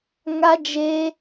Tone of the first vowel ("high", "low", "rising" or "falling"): high